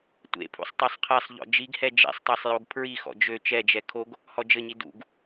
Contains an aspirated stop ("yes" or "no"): yes